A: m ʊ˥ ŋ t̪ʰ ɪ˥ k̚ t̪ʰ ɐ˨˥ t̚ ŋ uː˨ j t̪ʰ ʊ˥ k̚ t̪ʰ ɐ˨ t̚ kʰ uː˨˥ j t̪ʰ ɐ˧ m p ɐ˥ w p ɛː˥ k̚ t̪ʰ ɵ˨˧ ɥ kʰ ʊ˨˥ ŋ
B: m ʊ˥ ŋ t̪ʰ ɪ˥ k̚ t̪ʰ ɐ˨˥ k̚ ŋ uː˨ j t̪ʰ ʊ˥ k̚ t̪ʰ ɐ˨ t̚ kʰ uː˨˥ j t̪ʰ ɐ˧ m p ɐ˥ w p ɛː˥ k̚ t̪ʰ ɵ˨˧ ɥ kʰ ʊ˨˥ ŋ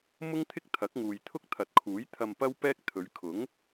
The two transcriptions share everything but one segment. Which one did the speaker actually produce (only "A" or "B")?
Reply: B